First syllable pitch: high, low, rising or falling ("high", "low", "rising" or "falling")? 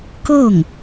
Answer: falling